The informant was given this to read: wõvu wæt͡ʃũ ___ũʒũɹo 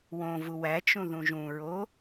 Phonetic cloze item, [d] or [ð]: ð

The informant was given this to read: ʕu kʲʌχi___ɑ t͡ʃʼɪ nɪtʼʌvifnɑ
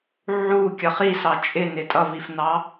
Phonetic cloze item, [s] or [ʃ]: s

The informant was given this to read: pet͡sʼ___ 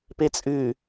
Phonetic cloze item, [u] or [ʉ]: ʉ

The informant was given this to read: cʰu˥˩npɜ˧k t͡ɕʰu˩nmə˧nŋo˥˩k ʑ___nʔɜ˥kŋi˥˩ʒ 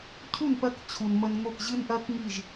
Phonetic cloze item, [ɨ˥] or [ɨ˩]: ɨ˥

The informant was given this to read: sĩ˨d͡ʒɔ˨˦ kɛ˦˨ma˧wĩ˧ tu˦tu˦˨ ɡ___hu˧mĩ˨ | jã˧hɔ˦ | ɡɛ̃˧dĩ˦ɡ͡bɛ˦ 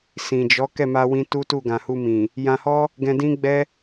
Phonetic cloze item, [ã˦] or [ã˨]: ã˨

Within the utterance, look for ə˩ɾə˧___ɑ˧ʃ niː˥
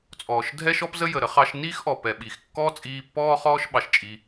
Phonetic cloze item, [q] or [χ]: χ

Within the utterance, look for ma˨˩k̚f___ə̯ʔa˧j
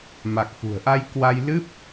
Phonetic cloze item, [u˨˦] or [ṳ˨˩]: ṳ˨˩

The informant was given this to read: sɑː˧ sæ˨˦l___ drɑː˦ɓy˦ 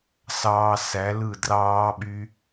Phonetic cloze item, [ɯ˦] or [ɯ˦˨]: ɯ˦˨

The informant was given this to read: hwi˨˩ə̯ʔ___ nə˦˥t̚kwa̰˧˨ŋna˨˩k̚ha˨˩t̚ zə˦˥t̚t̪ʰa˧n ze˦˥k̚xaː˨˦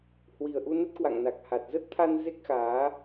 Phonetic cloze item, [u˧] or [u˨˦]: u˧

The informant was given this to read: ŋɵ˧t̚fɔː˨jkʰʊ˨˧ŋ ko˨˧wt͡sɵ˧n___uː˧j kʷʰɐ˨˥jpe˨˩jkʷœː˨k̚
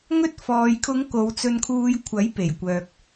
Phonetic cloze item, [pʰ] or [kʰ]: kʰ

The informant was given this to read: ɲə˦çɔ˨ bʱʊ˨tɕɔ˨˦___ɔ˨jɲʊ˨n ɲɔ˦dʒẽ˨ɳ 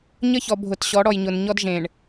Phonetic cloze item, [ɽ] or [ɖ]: ɽ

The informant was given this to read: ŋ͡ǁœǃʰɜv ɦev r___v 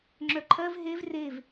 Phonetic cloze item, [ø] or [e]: e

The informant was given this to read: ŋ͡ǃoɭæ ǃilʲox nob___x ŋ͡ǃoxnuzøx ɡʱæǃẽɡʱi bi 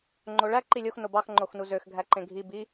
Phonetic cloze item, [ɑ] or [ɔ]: ɑ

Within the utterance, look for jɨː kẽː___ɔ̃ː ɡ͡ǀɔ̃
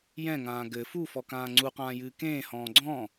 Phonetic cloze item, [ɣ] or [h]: h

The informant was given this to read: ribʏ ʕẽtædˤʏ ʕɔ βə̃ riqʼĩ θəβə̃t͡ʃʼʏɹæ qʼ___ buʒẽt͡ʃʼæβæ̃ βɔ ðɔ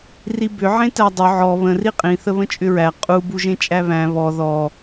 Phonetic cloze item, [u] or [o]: u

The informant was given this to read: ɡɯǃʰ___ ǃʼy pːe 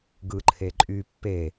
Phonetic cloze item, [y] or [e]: e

